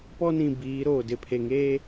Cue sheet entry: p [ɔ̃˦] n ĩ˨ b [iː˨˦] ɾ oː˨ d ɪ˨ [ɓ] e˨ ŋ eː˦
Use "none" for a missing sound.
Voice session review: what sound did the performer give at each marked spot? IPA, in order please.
ɔ˦, iː˨˦, pʰ

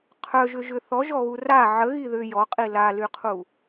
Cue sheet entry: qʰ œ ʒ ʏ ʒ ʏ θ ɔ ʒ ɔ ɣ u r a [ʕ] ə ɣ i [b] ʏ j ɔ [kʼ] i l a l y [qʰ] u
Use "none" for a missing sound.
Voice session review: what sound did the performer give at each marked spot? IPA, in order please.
ʕ, ð, qʼ, qʰ

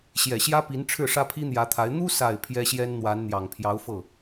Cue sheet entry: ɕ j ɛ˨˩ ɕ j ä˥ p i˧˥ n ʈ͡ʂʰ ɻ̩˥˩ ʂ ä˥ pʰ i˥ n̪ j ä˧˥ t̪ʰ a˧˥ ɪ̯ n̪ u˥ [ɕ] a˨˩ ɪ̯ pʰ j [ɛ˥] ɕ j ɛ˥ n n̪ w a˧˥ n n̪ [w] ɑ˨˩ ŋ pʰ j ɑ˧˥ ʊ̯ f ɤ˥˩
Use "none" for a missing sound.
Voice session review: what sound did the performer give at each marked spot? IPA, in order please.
s, ɛ˥, j

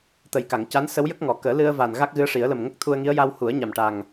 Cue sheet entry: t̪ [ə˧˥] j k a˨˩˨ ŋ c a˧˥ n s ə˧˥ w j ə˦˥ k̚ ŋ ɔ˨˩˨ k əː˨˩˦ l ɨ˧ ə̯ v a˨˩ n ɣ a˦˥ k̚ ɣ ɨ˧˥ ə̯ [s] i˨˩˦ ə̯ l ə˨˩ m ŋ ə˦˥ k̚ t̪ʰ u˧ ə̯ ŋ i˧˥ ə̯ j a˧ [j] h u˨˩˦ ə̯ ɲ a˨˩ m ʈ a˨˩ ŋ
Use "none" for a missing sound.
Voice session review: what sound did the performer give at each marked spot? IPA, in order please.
ə˨˩, ʂ, w

